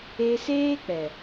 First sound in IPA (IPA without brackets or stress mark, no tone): e